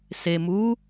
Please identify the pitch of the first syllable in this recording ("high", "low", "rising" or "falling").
low